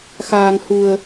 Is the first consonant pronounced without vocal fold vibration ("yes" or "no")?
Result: yes